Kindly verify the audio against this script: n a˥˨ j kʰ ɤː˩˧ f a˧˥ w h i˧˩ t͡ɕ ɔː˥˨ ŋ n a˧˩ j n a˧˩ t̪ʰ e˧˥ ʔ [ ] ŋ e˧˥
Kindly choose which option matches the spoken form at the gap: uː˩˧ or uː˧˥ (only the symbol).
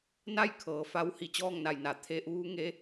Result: uː˧˥